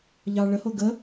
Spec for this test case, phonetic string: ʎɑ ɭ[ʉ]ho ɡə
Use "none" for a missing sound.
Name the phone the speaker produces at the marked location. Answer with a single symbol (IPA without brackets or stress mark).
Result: ə